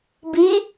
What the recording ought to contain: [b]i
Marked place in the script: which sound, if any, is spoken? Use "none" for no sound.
b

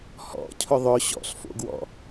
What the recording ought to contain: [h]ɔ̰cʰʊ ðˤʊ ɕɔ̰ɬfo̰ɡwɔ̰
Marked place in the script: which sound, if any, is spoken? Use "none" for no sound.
h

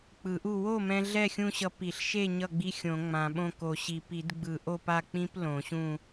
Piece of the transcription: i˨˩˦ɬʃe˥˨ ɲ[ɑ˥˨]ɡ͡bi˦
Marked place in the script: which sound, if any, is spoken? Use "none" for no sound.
ʌ˥˨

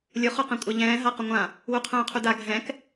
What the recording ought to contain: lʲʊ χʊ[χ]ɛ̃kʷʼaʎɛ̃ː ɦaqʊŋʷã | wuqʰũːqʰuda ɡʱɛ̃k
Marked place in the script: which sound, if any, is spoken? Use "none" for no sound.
q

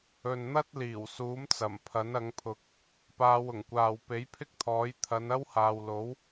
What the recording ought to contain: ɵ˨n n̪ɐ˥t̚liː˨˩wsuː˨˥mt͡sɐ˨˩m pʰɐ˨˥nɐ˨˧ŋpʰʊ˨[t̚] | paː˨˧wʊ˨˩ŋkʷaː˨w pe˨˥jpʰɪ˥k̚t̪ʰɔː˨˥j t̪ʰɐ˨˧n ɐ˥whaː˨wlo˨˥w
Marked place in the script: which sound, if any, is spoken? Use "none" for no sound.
k̚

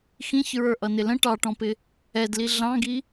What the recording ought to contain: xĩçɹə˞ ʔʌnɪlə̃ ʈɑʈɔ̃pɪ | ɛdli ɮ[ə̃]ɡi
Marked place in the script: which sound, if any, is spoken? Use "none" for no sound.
ɑ̃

